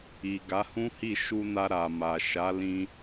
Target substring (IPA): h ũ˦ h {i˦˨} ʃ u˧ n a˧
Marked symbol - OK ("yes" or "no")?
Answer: yes